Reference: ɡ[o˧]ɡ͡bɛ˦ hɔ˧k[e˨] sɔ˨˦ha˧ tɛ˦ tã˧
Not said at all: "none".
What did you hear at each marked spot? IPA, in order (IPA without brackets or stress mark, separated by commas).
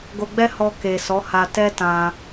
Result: o˧, e˨